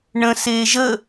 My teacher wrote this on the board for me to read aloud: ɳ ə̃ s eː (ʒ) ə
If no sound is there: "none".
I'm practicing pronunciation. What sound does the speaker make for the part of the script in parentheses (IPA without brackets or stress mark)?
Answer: ʒ